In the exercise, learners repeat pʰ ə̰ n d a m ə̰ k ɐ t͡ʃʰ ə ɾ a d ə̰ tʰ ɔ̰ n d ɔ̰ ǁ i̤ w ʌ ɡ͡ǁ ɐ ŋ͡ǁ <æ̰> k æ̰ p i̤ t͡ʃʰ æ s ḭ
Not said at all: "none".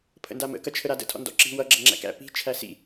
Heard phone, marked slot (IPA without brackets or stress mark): æ̰